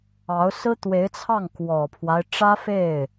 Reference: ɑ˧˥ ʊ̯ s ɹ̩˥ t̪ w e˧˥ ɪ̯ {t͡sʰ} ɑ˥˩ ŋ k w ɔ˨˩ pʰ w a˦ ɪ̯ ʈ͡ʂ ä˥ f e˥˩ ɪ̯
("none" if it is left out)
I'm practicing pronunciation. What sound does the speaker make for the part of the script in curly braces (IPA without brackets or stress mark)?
t͡sʰ